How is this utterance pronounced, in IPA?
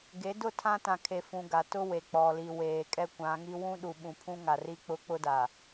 ɡ e˨˦ d ʊ˦˨ tʰ ã˦ t ã˨ kʰ e˨ f ũ˨ ɡ a˨ t ʊ˦ w e˨ k͡p ɔ˨ l i˨ w eː˨ kʼ ɛ˦ kʷ ã˨˦ ŋ i˦ w ũ˦ ɗ u˨ ɓ ũ˨ pʰ ũ˦ ŋ a˨ r i˦ k͡p ʊ˦ k͡p ʊ˦ d a˨

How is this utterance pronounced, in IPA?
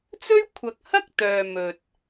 t͡s ɵ˥ ɥ kʷʰ ɐ˨ k̚ h ɐ˥ k̚ t̪ œː˨ m ɵ˨ t̚

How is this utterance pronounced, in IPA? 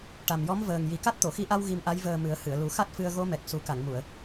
ʈ a˨˩ m j ɔ˧˥ m v əː˨˩ ŋ j i˨˩ k a˦˥ t̚ t̪ o˨˩˨ x i˧ ʔ a˧ w ɣ i˧ m ʔ a˧˥ j v əː˨˩ m ɨ˨˩˦ ə̯ h ɨ˨˩˨ ə̯ l u˨˩˦ x a˦˥ t̚ f ɨ˧ ə̯ ɣ o˧˥ m ɛ˨˩ k̚ s u˨˩˦ k a˨˩˨ ŋ m u˨˩˨ ə̯

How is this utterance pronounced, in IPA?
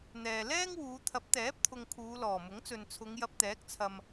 n̪ ɛː˨ l ɛː˥ ŋ w uː˨˧ t̪ʰ ɐ˨˥ p̚ t̪ ɛː˨˥ p̚ t̪ʰ ʊ˨ ŋ kʰ uː˨˧ l ɔː˨˩ m ʊ˨˥ ŋ t͡s ɵ˨ n t͡sʰ ʊ˨˧ ŋ j ɐ˧ p̚ t̪ ɛː˨˥ k̚ t͡sʰ ɐ˨ m

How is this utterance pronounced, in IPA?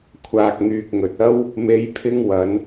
kʷʰ aː˨ k̚ ŋ yː˨ k̚ ŋ ɵ˨ t̚ ɐ˥ w | m e˨˧ j pʰ ɪ˧ ŋ w ɐ˨˧ n

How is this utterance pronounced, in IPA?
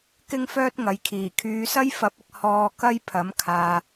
k ɪ˥ ŋ f œː˥ t̚ ŋ ɐ˨ j kʰ iː˨˩ kʰ yː˨˧ s ɐ˥ j f ɐ˨˥ p̚ ɪ˨ k̚ h ɔː˧ k ɐ˥ j pʰ ɐ˨˥ m kʰ aː˨

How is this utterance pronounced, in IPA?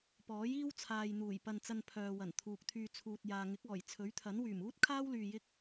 p ɔː˨˥ j iː˥ w t͡sʰ aː˨ j n̪ uː˨˩ j p ɐ˧ n t͡s ɐ˧ n pʰ œː˨ w ɐ˨˩ n t̪ʰ uː˨ k̚ t̪ʰ yː˧ t͡sʰ uː˨ t̚ j aː˨ ŋ ɪ˨˥ k̚ ɔː˨˩ j t͡sʰ ɵ˨˥ ɥ t̪ʰ ɐ˨˥ n w yː˨˩ m uː˥ t̚ kʰ aː˥ w l yː˧ j ɪ˥ k̚

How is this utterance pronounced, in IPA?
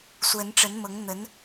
s w ə˧˥ n ʈ͡ʂ ə˧˥ n m ɤ˧˥ ŋ n̪ ə˧˥ n

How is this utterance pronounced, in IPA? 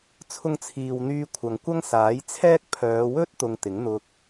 t͡sʰ ʊ˥ ŋ t͡sʰ iː˧ w n̪ yː˧ kʷʰ ɐ˨ ŋ kʷ ɐ˥ ŋ s aː˨˥ j t͡sʰ ɛː˥ k̚ pʰ œː˨˧ w ɵ˥ t̚ t̪ ʊ˧ ŋ t̪ ɪ˨˥ ŋ n̪ ʊ˧ k̚

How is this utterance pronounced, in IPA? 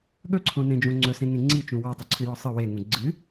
ɠ ɵ ǀʰ õ n ẽ d͡ʒ õ ŋ͡ǀ ɵ s ẽ ŋ ẽ ŋ͡ǀ i t͡ʃ ũ w a tˤ u ǀʰ ɨ j ɔ sˤ ɨ w e ŋ ũ ɡ͡ǀ ɨ

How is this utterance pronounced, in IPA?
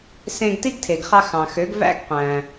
s ẽ˧ ɡ t i˥ ɡ tʰ e˩ ɡ χ ɑ˧ x ɑ̃˩ x ø˩˥ ɡ v æ̰˥ ɡ qʷ æ̃˩

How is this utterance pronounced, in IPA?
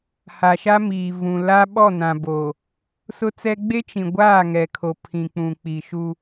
h a˨ ʃ a˦ m iː˨ v ũ˨ l a˦ ɓ ɔ˦˨ n ã˨ b oː˨ | s ʊ˦ t͡s ɛ˦ ɡ͡b e˦ t͡ʃ ĩ˨ ɡʷ aː˦˨ ŋ ɛ˨ kʰ o˨ pʰ ĩ˨ k͡p ũ˨ k͡p i˨ ʃ u˦

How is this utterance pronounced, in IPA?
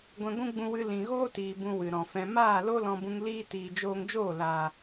ɡʷ ɛ̃˧ ɡʷ ũ˦ ɡ͡b ũ˧ w ɨ˧ l ĩ˨ ɣ oː˦ t iː˨ b ũ˧ w ɨ˨ ɾ ɔ̃˨ f ɛ̃˧ m aː˦˨ l o˦ l ɔ̃˧ b ũ˧ ŋ l iː˦ t iː˨ d͡ʒ oː˧ ŋ d͡ʒ oː˦˨ l aː˨

